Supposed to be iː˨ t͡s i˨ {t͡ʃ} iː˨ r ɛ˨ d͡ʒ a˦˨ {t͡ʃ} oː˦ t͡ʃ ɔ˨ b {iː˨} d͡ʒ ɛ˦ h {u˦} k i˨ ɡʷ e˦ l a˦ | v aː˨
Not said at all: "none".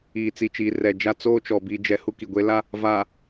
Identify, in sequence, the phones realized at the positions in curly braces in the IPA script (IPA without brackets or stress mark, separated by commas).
t͡ʃ, t͡s, iː˦, u˦